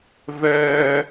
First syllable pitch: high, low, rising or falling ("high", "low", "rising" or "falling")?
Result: high